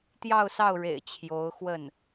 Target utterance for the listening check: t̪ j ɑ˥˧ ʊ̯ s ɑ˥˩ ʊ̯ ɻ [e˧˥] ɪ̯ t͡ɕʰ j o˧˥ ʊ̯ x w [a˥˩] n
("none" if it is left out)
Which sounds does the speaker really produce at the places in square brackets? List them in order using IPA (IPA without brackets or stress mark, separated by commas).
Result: ḛ˨˩, ə˥˩